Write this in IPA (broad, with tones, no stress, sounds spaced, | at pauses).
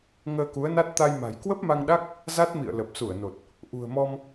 ŋ əː˧ k u˨˦ ə̯ n a˦˥ t̚ t̪ a˧ j m a̤˨˩ j k w ə˦˥ p̚ m a˧ ŋ ɗ a˦˥ k̚ | z a˦˥ t̚ m ḭ˧˨ ə̯ l ə˨˩ p̚ s u˧˩ ə̯ n o˨˩ t̚ | ʔ ṳ˨˩ ə̯ m ɔ˧ m